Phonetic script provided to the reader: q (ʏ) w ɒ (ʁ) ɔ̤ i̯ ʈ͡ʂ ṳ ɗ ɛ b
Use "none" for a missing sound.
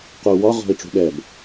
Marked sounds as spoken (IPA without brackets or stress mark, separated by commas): u, ʁ